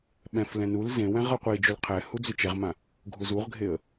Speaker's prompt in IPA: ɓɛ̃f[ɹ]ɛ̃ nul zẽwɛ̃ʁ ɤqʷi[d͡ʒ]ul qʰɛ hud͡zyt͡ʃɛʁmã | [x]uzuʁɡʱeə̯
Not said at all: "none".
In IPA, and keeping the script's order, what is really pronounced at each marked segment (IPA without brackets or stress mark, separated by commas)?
l, d͡ʒ, ɡʱ